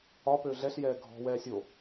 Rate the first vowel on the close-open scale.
open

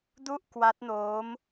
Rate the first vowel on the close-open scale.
close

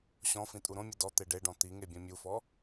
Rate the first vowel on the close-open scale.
mid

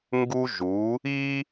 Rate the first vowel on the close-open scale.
close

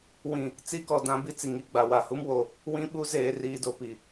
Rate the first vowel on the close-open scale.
close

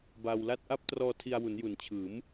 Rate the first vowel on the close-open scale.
open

